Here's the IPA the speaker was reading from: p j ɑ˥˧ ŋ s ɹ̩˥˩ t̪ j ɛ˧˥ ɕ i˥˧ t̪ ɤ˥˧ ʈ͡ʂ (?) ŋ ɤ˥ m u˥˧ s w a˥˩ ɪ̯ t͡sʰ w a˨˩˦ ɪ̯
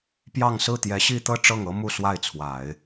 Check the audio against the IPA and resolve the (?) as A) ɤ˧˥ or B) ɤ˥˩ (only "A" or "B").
B